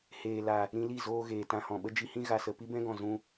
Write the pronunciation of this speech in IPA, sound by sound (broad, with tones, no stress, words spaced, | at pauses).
heː˨la˨ | ɾĩ˧li˦˨ zoː˧ ɣeː˨tã˧hɔ̃˨ ɓə˦d͡ʒi˧hĩ˦ ɣa˨sə˨ pi˦bɛ̃˦ɡɔ̃˨ zũ˧